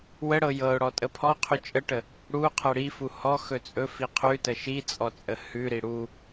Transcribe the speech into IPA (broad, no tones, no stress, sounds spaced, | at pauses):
w ə ɽ ɤ j ɤ ʊ̯ ɽ ɔ tʼ ə pʰ ɔ qʰ ʉ t͡ʃʼ ə ʈ ə | ɽ u qʰ ɤ ɽ i f u h ɔ x ɵ t͡sʼ ɵ f i qʰ ʉ t ə ʃ i t͡sʼ ɔ t͡sʼ ə h ʉ ɾ i ɽ u